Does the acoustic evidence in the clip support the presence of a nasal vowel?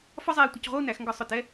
no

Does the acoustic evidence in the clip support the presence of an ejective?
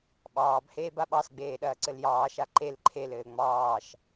no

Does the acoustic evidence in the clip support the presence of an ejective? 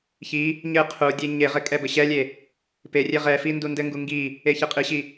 yes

